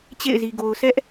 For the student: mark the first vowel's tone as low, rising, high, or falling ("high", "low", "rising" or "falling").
falling